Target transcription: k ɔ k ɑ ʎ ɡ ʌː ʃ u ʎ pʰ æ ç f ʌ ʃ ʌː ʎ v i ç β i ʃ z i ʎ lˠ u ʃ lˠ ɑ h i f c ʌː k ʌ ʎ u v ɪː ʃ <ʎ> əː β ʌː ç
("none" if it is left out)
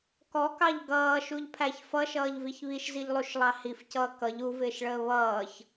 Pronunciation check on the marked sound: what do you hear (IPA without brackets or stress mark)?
ɭ